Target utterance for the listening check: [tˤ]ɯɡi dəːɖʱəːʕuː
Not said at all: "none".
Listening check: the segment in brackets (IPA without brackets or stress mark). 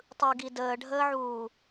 tˤ